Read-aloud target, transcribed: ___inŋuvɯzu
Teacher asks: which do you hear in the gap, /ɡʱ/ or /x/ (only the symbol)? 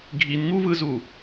ɡʱ